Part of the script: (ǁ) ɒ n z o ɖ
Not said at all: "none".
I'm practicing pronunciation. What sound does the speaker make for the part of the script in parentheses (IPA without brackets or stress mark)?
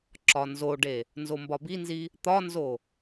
ǁ